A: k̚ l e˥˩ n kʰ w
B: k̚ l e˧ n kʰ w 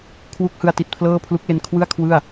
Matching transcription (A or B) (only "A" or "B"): B